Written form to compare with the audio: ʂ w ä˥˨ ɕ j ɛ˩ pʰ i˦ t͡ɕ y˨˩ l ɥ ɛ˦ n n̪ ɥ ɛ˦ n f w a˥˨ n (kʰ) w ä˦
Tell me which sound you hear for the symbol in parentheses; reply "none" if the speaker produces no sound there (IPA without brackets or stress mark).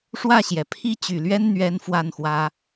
x